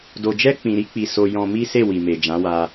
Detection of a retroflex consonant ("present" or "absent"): absent